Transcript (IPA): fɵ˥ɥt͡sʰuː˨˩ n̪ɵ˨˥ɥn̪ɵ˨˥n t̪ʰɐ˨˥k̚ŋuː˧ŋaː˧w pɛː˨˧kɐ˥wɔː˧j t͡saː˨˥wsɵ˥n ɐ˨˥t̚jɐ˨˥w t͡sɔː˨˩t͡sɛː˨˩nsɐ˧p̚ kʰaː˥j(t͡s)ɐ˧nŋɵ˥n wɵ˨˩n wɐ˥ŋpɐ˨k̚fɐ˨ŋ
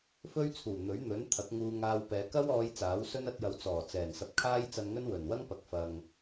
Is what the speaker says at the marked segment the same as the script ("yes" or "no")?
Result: yes